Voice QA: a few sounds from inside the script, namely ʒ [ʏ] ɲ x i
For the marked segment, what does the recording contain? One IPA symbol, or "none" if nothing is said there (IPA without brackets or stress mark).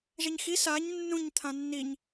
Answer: ɛ